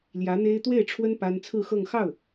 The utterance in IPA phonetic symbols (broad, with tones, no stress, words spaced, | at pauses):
ljä˧˥n̪e˥ɪ̯ t̪we˥˩ɪ̯ʈ͡ʂʰwə˥n pa˥n t͡sʰɹ̩˥˧xɤ˥˧ŋ xɑ˥˩ʊ̯